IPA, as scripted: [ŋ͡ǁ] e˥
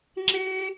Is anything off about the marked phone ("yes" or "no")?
no